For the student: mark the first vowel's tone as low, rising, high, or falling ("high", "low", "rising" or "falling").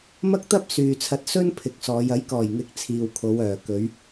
high